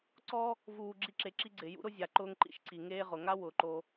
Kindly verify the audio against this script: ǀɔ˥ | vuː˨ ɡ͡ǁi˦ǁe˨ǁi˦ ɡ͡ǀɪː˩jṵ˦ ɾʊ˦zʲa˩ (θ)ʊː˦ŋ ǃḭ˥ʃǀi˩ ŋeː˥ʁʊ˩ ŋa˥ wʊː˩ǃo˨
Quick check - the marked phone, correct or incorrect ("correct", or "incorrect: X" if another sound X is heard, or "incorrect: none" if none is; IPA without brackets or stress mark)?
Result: incorrect: ǃ